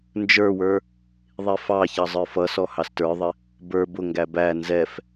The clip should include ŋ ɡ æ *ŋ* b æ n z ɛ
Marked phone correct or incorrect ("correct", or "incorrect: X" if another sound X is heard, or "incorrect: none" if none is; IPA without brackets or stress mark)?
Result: incorrect: none